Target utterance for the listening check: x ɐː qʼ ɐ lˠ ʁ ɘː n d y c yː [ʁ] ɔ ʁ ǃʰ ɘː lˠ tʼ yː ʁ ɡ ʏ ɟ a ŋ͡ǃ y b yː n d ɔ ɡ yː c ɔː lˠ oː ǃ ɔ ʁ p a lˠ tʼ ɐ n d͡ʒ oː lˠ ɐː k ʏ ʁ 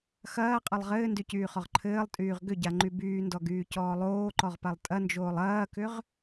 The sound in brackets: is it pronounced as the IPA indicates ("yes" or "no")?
no